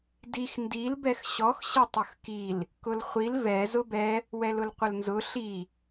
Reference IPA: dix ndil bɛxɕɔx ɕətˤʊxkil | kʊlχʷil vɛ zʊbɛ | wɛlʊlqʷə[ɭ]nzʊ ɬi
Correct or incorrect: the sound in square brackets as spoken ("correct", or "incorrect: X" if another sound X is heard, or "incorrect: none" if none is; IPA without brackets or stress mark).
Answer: incorrect: l